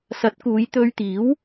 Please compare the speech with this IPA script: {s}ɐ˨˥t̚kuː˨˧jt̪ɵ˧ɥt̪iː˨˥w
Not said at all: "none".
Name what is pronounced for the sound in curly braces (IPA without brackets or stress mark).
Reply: s